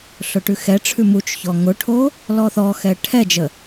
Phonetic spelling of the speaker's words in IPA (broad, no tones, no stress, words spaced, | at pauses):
ɬʊʈʉxɛʈ͡ʂʰʉ mut͡ʃçɔ ŋʊʈʰo | lɔθɔxɛ ʈʰɛd͡ʒə